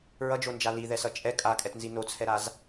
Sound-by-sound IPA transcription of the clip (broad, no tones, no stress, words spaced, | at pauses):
ɹʌd͡ʒond͡ʒa liðɛsʌ t͡ʃʼɛ kʼakʼɛtnzi not͡sʰɛɾaz